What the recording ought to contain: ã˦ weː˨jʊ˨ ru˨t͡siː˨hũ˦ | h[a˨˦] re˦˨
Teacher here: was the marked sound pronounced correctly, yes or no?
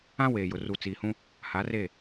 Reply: yes